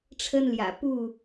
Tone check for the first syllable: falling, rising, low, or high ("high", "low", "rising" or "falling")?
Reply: high